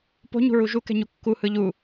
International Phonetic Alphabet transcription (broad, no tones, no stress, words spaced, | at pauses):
po̤ɲṳɹu ʒukɛ̤ɲu kːuhɯ ʎu